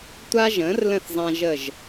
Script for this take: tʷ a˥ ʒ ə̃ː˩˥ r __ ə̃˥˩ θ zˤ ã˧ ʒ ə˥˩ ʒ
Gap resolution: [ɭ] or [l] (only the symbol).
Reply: l